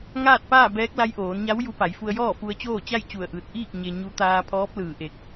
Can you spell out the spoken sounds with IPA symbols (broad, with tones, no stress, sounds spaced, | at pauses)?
ŋ aː˥˨ t̚ p aː˥˨ b ɛː˧˥ k̚ l a˧˥ j ʔ oː˩˧ n ɲ a˧˥ w j u˧˥ p a˩˧ j f u˧ ə̯ j ɔː˥˨ f u˧ ə̯ t͡ɕ oː˥˨ t͡ɕ a˥˨ j t͡ɕ u˧˩ ə̯ ʔ ɯː˧˩ t̚ ʔ iː˥˨ k̚ ɲ e˧ ɲ u˧˥ t̪ aː˧ pʰ ɔː˧˥ p̚ l ɯː˧˩ ʔ e˧˩ k̚